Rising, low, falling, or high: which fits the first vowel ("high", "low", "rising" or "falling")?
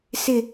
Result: low